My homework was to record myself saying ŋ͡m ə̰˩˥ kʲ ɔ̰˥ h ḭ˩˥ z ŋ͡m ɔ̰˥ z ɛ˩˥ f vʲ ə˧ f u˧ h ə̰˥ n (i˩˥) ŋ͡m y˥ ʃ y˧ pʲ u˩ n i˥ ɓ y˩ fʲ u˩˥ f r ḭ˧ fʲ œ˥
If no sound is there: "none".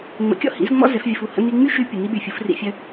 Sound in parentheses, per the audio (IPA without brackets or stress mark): i˧